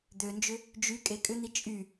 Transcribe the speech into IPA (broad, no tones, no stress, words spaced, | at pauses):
d̪ønd͡ʒʏ | d͡ʒy kʼekʼʏn̪i t͡ʃʼy